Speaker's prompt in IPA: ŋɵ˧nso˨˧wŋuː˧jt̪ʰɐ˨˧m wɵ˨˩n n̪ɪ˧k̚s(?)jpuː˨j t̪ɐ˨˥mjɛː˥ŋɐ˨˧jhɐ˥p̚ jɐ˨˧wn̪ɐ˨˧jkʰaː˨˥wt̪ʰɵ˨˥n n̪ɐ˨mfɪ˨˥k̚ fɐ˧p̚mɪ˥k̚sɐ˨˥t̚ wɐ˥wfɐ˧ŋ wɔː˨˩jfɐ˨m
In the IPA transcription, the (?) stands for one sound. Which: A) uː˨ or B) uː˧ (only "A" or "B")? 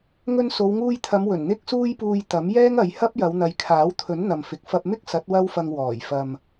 B